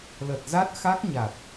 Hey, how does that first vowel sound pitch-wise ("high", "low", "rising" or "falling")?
low